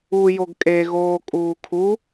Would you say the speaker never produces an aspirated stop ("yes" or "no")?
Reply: no